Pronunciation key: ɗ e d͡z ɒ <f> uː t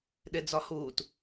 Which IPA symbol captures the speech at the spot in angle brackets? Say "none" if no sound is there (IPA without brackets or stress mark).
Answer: h